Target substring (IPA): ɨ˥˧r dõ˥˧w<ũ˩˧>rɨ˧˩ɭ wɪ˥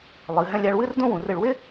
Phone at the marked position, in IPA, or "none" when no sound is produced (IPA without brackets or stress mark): ũ˩˧